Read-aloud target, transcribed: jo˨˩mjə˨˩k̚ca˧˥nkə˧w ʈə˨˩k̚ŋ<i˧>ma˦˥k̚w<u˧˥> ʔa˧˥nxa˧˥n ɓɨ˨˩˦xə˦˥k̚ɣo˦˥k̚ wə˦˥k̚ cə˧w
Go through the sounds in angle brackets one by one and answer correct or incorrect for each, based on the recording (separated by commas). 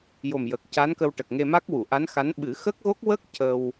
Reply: incorrect, incorrect